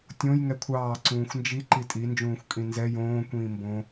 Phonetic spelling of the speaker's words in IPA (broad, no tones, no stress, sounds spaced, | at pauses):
tʲ õ j ŋ ɛ kʷʰ ɑː ǀ ũː xʷ n d͡ʒ i ǃ i tʼ i n d͡ʒ ũː xʷ kʼ ĩ n z ɛ j õː kʷ ĩː m b õ